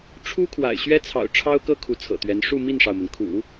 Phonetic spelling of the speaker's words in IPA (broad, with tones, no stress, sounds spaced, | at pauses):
ʈ͡ʂʰ u˥ kʰ w a̰˨˩ ɪ̯ ɕ ɥ ɛ˥ t͡sʰ ɑ̰˨˩ ʊ̯ ʈ͡ʂʰ ɑ˥ ʊ̯ k ɤ˥ kʰ u˧˥ t͡sʰ ɤ̰˨˩ t̪ ɥ ɛ˧˥ n ʂ u˥˧ m i˥˩ n ʂ ɑ˩ ʊ̯ m ə˩ n kʰ ṵ˨˩˦